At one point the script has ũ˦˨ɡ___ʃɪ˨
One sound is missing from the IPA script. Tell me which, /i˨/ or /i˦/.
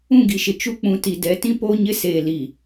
i˨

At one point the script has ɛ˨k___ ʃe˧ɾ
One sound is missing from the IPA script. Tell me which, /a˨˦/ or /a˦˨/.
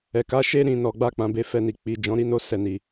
a˨˦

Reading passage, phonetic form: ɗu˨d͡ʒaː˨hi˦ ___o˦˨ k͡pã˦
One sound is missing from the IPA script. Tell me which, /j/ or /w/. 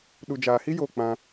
j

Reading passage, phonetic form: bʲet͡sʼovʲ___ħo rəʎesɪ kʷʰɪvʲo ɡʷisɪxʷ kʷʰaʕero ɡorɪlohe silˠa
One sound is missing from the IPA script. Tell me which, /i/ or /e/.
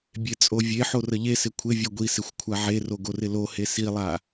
e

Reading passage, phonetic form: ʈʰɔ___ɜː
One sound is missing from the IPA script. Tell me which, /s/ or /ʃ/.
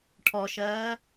ʃ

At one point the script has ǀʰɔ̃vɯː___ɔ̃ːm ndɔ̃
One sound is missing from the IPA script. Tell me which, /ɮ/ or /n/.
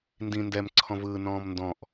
n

